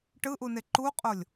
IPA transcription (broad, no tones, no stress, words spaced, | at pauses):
ʈɯʔune ǃuqʼolʲ